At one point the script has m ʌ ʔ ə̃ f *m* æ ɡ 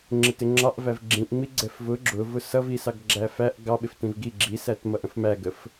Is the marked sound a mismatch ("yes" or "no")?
no